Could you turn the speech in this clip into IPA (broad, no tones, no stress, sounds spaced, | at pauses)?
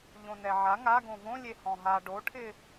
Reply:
ʎ õ n ɛ ʕ a ŋ a ɡ õ v õ lʲ e h ɔ̃ ɦ a ɖ o ʈʰ ɪ